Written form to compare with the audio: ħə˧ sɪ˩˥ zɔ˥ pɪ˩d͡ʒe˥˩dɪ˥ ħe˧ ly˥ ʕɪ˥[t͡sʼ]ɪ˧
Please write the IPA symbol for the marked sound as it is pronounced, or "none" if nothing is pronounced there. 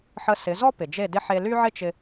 t͡ʃ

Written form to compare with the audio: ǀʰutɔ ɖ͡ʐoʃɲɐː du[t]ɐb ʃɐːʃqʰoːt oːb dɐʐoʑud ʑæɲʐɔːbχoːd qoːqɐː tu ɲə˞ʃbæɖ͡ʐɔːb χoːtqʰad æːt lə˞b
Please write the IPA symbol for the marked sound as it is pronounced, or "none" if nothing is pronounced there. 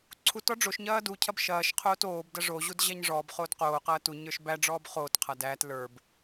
cʰ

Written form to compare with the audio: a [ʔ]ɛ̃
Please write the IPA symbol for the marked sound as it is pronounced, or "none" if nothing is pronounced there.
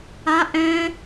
ʔ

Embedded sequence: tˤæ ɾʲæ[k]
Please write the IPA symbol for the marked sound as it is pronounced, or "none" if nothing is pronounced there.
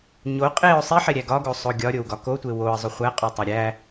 none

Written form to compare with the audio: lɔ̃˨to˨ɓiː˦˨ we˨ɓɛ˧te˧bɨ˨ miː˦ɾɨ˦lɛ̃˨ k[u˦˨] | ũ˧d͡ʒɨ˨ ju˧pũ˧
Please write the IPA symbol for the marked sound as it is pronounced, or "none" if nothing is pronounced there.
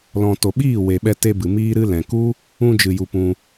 u˦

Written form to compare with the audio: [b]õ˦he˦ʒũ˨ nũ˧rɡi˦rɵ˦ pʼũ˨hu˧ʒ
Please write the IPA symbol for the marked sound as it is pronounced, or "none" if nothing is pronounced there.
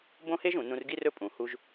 b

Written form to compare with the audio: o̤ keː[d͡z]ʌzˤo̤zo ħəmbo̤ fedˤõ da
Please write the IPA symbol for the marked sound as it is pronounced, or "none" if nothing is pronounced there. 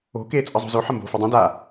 t͡sʼ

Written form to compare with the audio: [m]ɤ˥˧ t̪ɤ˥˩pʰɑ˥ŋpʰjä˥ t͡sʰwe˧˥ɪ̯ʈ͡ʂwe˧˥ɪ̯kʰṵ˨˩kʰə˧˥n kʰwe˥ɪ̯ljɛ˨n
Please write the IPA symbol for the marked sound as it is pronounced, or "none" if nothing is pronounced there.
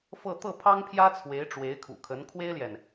f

